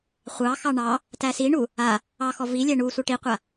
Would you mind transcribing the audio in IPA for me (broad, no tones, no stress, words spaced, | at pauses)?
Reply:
χʷɑxɑ ɳɑ | tæsiɳu | a | ɑxɔ vilʲæ ɳusʷa ʈiqʷa